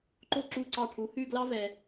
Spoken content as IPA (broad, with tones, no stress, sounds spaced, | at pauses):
ǃ o˦ ǁ u˦˨ ǀ ɑ˦˨ ʈʰ u˨˦ h ʉ˦˨ ɡ l ɑ˦ v ɛ˨